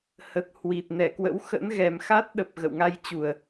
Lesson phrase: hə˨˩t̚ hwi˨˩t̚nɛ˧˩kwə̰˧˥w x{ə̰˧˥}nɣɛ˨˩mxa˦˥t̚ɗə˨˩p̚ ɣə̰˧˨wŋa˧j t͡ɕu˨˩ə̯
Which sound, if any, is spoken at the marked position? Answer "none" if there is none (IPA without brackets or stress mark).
ə̰˧˥